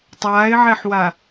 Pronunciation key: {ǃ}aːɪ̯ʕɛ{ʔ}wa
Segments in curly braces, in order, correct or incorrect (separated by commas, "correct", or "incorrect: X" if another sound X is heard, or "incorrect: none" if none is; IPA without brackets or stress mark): incorrect: tˤ, incorrect: ħ